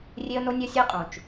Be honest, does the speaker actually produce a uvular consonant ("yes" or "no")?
yes